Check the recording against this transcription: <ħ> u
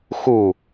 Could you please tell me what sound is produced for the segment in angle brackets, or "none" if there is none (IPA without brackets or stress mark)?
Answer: x